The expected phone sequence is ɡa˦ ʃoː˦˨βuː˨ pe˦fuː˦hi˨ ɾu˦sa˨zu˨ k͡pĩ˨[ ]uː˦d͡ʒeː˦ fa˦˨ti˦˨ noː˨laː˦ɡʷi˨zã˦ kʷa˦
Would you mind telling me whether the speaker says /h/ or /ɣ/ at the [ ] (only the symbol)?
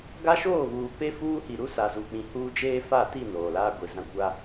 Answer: h